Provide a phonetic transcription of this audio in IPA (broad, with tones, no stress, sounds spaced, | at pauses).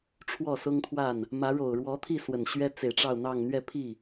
ʈ͡ʂʰ w ɔ˥˩ s ʊ˥ ŋ t̪ʰ w a˥˩ n | m ä˧˥ ɻ o˨˩ ʊ̯ ɻ w ɔ˧˥ t̪ʰ i˥˩ s w ə˨˩ n ɕ ɥ ɛ˥ t͡s e˨˩ ɪ̯ ʈ͡ʂ ɑ˥˧ ʊ̯ n̪ ɑ˥˧ ŋ n̪ ɥ ɛ˥˧ pʰ i˥˩